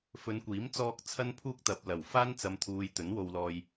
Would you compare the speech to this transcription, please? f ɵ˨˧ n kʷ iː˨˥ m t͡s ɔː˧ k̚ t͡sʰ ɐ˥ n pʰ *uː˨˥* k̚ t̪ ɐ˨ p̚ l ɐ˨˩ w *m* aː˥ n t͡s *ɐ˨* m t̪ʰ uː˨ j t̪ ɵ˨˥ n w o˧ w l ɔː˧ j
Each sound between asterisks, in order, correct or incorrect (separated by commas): incorrect, incorrect, correct